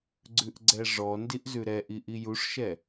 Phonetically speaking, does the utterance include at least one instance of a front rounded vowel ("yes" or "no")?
no